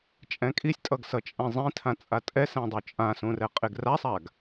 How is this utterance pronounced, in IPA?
t͡ʃʼ ɛ̃ kʼ i sʲ tʼ ʌ ɡ s ʌ t͡ʃʼ ɛ̃ zˤ ĩ tʰ ã t͡sʼ a tʼ ɛ s ɛ̃ dˤ o t͡ʃʼ ã s ũ r ɛ qʼ e ɡ r a sˤ a ɡ

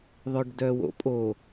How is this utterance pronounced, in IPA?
ðˤ œ ɖ d œ w o̰ pʼ o

